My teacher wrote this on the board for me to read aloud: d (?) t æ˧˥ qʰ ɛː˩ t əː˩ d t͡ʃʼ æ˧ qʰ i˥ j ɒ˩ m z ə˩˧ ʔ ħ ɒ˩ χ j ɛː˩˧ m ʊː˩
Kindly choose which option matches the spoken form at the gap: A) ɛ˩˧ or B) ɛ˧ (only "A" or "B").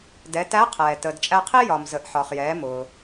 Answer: A